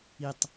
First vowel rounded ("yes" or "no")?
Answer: no